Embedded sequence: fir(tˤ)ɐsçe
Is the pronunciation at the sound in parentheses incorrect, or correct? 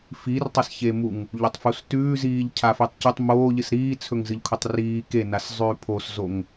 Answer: correct